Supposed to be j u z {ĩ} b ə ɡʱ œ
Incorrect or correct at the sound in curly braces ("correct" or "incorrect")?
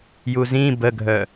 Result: correct